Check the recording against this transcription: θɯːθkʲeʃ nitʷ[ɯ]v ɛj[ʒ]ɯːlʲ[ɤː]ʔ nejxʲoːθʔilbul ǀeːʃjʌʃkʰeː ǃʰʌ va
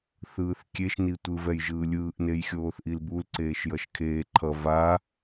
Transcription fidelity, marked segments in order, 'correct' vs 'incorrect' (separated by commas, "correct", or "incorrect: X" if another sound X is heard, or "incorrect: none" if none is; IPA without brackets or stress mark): correct, correct, incorrect: ɯː